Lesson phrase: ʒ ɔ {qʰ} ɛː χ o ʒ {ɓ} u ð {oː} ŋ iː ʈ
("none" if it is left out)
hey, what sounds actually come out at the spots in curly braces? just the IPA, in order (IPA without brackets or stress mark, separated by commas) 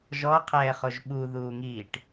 qʰ, ɓ, uː